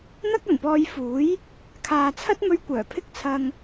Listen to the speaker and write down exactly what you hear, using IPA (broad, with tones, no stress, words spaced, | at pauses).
n̪ɐ˥k̚ɐ˨˩npɔː˧jfuː˨˥j | kʰaː˨t͡sʰɐ˥t̚mɵ˧ɥ kʷœː˨˩pʰɪ˥k̚t͡sʰɐ˧ŋ